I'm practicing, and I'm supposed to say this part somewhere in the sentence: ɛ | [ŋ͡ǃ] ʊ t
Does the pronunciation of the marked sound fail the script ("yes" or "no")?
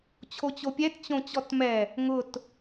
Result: yes